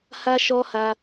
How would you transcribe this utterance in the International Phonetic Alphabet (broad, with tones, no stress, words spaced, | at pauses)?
ha˧ʃɔ˧ ha˧